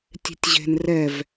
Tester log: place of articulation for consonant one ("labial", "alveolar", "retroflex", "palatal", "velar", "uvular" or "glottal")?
alveolar